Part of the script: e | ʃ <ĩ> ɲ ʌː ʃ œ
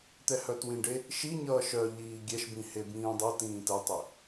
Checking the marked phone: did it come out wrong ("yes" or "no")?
yes